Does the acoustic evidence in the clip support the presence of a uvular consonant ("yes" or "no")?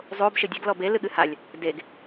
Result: no